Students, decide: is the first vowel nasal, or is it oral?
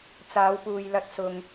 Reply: oral